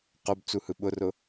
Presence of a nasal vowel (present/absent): absent